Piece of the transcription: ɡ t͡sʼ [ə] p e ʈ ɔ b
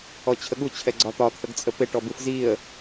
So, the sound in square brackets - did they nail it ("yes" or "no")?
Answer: yes